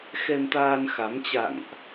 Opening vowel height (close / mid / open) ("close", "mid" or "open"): mid